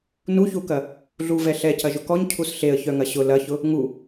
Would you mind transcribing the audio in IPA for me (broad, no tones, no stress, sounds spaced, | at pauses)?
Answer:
n u ç u k ɐ | ɮ u v ɛ ɬ ɛ c ɐ ʒ ʊ k ɔ ɲ cʰ u s ɬ e ə̯ ç œ ŋ ɐ ɕ ʊ l ɐ ç ʊ | ŋ u